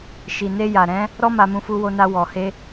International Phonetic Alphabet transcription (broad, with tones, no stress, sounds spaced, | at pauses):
ʃ i˨ n e˧ j a˨ ɾ ɛ̃˨˦ | ɾ ɔ˦ m a˧ m ũ˧ f u˧ w o˧ n a˧ w ɔ˨ h e˧